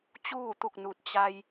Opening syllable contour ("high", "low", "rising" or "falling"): falling